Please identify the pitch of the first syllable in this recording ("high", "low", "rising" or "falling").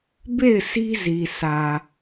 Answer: falling